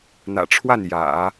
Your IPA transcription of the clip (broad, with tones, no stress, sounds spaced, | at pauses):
n̪ ä̰˨˩ ʈ͡ʂʰ w a˥˩ n j ä̰˨˩˦